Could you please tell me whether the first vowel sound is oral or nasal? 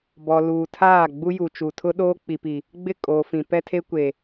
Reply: oral